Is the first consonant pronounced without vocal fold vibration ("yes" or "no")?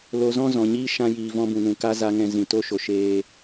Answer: no